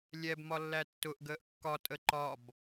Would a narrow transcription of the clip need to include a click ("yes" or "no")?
yes